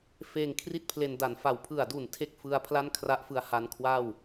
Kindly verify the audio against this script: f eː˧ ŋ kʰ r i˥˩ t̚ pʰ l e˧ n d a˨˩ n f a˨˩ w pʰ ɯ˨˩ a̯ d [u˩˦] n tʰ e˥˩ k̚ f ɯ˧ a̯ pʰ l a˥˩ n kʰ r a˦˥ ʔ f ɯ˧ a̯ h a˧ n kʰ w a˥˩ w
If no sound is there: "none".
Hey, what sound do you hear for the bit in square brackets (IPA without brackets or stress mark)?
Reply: u˨˩